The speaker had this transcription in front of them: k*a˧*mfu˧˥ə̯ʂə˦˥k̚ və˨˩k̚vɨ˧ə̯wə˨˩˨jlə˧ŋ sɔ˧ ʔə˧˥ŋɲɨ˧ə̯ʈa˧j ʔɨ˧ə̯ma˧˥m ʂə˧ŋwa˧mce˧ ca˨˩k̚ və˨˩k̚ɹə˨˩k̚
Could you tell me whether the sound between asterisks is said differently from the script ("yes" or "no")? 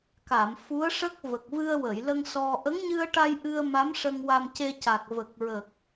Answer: yes